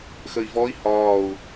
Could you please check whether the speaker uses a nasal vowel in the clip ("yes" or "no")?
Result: no